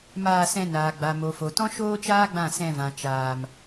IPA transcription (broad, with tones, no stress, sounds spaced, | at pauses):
m aː˧ s ɛ̃˧ n aː˨ ɡ͡b a˨ m o˨ f o˨ t ɔ̃˦ ʃ oː˦ t͡ʃ aː˦ ɡ͡b ã˦˨ s ɛ̃˧ v ã˨ t͡ʃ aː˨ m